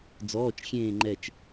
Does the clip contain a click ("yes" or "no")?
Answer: yes